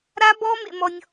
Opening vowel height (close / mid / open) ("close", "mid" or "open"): open